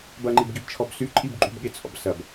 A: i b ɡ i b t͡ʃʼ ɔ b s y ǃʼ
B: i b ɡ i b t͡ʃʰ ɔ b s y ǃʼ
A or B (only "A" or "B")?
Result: B